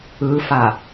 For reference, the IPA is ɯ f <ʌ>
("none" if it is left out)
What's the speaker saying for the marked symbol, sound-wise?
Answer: a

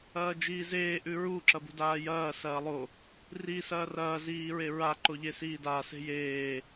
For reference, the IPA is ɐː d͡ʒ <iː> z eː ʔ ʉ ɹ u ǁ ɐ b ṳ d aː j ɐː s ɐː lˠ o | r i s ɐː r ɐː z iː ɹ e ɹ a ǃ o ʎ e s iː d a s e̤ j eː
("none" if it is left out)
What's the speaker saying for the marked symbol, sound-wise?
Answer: iː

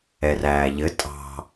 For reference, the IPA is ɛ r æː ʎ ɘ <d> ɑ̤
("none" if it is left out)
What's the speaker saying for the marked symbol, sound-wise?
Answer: tʼ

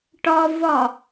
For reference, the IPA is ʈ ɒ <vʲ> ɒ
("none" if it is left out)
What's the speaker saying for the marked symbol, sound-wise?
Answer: v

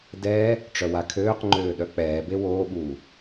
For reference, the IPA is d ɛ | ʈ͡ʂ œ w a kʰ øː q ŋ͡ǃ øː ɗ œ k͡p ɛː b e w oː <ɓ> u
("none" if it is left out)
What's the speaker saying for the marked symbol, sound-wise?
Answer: ɓ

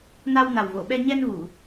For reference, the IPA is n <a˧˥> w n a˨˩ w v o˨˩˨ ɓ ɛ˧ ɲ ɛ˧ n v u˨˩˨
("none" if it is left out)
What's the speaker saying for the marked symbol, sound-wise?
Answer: a˧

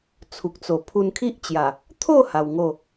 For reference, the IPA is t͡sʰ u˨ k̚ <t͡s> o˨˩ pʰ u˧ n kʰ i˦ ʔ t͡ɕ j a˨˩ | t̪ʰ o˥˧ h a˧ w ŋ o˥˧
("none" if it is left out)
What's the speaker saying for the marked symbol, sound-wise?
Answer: t͡s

